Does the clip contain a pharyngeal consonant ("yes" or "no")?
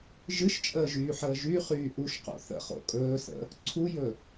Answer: yes